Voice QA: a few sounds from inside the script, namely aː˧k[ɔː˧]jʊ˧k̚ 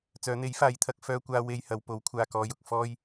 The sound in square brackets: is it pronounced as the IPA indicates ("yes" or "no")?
yes